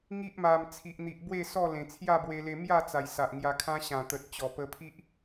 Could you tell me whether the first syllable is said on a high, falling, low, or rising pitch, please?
high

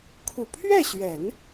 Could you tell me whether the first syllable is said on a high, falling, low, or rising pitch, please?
low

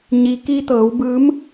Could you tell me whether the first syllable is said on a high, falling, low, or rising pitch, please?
low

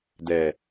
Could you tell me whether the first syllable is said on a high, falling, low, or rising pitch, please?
low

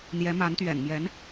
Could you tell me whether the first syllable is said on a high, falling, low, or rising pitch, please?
rising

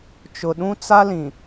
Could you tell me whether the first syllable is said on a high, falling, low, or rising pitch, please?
low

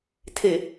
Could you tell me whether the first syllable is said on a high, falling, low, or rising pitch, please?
low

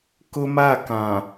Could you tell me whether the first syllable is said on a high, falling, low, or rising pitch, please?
high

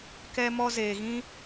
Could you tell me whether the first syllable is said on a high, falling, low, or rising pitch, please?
high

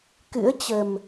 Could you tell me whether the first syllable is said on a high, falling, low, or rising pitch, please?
rising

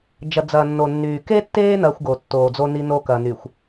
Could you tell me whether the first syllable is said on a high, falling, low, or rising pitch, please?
low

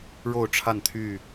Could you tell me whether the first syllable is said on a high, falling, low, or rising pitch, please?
falling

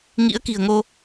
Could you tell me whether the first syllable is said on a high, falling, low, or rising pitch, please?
rising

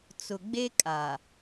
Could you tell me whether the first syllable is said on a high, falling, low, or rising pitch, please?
low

